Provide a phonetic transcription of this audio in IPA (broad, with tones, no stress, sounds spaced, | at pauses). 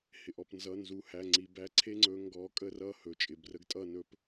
h ɪ˩ ʔ ɔ˩ p n z ʌ˩˧˩ n z u˩˧˩ h æ˩˧˩ ŋ͡ǀ i˩˧˩ b æ˦ ǀʰ e˦ ŋ͡ǀ ɵ˨˦ ŋ ɡ ɔ˨˦ kʼ ə˥˩ r ʌ˥˩ h ɵ˩˧˩ t͡ʃʼ ɪ˩˧˩ b r ə˦ ɡ tʼ ʌ˥˩ n ɵ˦ p